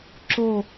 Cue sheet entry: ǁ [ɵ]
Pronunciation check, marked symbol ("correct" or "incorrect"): incorrect